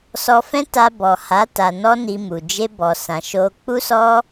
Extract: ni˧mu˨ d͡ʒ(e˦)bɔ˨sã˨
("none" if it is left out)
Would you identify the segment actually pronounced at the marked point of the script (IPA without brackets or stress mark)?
e˧